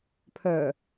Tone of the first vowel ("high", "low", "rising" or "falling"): low